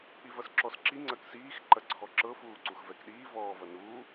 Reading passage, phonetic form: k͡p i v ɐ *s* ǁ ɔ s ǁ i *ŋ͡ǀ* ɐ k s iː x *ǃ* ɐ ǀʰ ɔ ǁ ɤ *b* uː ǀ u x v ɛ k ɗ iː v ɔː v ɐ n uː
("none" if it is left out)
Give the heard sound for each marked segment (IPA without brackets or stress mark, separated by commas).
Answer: s, ŋ͡ǀ, ǃ, f